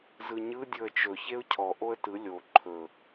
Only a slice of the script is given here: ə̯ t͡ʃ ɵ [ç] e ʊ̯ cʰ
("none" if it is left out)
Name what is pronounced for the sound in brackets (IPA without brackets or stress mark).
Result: ç